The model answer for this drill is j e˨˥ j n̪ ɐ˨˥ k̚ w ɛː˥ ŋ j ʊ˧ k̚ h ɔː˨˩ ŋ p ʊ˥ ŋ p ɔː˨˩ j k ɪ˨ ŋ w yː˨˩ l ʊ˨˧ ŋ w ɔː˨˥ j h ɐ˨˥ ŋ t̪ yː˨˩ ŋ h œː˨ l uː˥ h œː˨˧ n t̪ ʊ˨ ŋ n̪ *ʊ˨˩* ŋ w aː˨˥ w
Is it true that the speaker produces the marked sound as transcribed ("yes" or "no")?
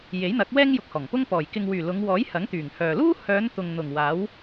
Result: yes